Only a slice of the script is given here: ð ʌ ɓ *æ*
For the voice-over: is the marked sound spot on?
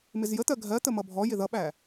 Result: yes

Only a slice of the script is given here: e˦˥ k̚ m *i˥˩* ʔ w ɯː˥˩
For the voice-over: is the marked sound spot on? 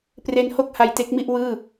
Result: yes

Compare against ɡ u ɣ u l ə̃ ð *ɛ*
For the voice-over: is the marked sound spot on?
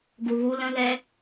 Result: yes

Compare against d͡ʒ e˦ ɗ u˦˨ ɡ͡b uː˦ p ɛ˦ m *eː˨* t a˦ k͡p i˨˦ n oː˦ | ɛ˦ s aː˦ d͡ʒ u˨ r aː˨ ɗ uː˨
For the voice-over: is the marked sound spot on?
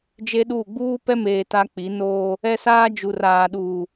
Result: yes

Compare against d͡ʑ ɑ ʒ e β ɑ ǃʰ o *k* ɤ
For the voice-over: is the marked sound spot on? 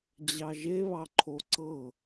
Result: no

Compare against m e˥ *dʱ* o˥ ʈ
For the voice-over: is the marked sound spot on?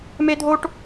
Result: yes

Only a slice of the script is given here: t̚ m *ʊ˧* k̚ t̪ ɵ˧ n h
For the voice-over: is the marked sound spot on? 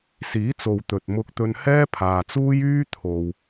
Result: yes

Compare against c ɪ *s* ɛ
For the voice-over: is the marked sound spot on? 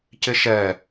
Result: no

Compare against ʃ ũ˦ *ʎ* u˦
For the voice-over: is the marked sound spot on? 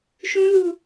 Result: no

